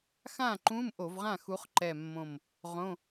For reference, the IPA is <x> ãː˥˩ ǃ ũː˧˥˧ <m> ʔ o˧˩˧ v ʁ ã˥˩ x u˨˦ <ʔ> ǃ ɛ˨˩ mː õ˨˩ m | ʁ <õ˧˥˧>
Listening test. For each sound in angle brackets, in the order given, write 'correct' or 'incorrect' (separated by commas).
correct, correct, incorrect, correct